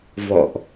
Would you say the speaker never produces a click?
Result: yes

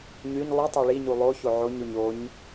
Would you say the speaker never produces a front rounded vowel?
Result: no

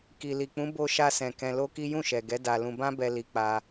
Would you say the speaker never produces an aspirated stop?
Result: yes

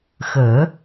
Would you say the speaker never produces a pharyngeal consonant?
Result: yes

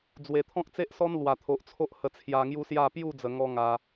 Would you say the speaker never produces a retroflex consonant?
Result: yes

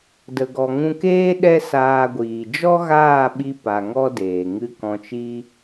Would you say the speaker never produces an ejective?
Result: yes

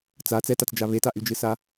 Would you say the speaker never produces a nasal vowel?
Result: yes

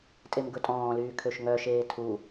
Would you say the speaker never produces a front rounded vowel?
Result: no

